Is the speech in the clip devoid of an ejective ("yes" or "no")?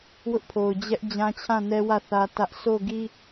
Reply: yes